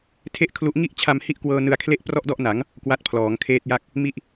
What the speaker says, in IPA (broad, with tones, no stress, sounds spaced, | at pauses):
tʰ e˥˩ ʔ kʰ l u˦˥ ʔ ŋ i˥˩ ʔ t͡ɕʰ a˧ m h i˥˩ ʔ k w ɤː˧ n ɯ˧ a̯ kʰ l e˥˩ ʔ p r ɔ˥˩ ʔ d ɔ˥˩ ʔ n a˩˦ ŋ | k w a˦˥ t̚ pʰ l ɔː˩˦ ŋ kʰ eː˦˥ t̚ j a˥˩ k̚ | m i˦˥ ʔ